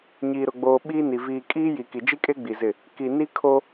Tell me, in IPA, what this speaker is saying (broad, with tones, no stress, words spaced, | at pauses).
ɲiː˨ɾʊ˨ɡ͡boː˨ ɓiː˦ni˨ viː˨kʼiː˦ ji˨ki˨ d͡ʒi˦kʼe˦ ɡ͡bi˨zɪ˦˨ | ki˨ni˦kʰo˦